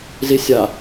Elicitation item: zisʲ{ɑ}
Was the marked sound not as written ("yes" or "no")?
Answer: yes